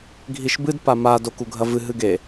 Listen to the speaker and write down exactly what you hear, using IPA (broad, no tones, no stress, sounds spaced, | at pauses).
ɡʱ i ʃ b ɨ d p a m a d o k u ɡʱ ɐ v ɨ ɦ ɨ ɡ e